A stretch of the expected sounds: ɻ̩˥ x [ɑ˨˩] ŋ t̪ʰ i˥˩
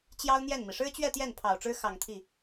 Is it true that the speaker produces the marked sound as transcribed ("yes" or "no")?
yes